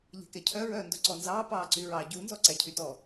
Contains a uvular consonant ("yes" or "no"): no